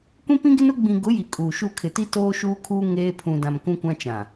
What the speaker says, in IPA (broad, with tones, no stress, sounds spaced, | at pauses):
kʷ ĩ˦ p ĩ˦ ɡ ɪ˦ n ʊ˦ ɡ͡b ĩ˨ ɡ ʊ˨˦ j i˨ kʼ uː˨ ʃ u˦˨ kʰ ɪ˨ t i˦ t oː˦ ʃ uː˦ kʰ uː˦ ŋ eː˦ pʰ ũ˨ d ã˨ m k ũ˦ kʷ ã˦ t͡ʃ ã˨